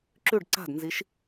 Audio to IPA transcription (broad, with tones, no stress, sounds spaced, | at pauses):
ǁ ʉ˧˩ ɖ ǀ a̤˧˩ d n z i˩˧ ʃ